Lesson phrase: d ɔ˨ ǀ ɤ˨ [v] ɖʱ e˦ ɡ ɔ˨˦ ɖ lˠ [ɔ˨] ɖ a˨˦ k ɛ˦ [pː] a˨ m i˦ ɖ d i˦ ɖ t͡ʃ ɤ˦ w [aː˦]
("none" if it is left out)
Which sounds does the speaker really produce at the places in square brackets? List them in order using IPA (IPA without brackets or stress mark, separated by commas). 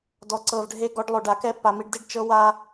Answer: v, o˨, pː, a˦